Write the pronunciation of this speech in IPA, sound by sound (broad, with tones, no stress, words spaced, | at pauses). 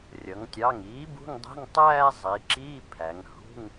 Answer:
rʲʌ˩˧ŋtʲɑ˩˧˩ŋiː˩˥ bṳ˧˥˧ŋdˤɛ̤˧˥˧ŋ tˤæː˥˧zˤiː˩˧ ǁiː˧˥˧pʰæ˩˧ŋ hṳ˧˥˧ŋ